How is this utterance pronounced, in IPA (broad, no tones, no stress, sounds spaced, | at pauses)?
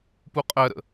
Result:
p u qʼ ɜ ɾ ə̰